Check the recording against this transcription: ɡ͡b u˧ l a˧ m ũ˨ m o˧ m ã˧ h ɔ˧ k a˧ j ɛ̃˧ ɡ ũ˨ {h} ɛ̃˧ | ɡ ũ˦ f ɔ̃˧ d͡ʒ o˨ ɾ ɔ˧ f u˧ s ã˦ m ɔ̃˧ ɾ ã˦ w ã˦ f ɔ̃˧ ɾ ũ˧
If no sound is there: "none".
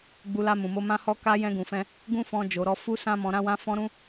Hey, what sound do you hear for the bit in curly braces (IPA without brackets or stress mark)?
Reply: f